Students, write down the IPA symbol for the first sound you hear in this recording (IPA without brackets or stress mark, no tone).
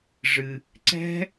ʐ